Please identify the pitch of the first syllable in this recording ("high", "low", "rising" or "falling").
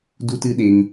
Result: high